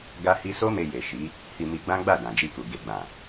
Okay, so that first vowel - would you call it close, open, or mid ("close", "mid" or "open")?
open